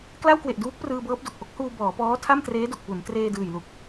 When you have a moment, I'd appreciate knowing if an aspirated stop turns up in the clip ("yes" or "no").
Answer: yes